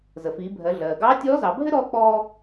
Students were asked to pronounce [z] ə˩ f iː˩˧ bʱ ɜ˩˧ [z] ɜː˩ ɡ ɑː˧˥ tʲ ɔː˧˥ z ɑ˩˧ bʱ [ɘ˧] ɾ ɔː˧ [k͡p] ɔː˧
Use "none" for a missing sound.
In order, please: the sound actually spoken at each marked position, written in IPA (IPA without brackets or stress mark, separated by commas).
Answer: z, ɮ, ɘ˥, k͡p